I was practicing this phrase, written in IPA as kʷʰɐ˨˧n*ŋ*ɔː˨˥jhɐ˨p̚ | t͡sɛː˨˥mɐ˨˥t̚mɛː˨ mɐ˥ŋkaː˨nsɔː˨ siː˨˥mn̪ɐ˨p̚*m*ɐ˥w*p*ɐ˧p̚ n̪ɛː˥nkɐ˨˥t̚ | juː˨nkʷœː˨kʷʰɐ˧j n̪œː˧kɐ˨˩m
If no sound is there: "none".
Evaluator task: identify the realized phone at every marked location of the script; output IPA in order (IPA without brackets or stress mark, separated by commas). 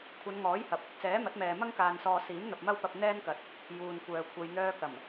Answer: ŋ, m, p